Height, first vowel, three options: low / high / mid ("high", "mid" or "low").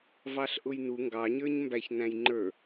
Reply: low